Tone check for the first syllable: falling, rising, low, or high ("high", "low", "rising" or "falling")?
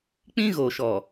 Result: high